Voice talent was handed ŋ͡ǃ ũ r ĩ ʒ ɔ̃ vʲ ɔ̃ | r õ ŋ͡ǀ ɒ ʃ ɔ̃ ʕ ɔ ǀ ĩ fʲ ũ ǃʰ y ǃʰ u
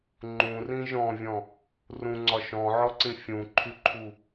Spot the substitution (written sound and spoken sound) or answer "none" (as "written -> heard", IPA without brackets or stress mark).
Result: õ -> ũ